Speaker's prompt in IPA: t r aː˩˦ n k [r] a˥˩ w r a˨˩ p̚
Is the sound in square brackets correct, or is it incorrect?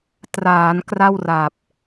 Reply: correct